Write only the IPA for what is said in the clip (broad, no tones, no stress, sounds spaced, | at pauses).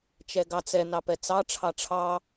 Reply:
t͡ʃ ɛ ɡ ɑ t͡s ɛ n ɑ p ɛ t͡s ɑ ʈ͡ʂʰ ɑ ʈ͡ʂʰ ɑ